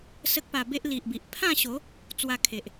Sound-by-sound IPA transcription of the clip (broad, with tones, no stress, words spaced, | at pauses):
sə˦k̚pa˧be˦ʔ li˨ʔbi˨ʔpʰã˥˧ɕo˨˦ | t͡swa˧kʰe˨ʔ